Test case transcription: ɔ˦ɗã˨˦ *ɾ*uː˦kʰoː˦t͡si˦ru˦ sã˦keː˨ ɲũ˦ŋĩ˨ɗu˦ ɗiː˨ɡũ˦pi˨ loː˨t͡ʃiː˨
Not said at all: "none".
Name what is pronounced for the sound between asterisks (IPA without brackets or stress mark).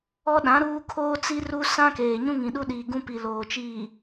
ɾ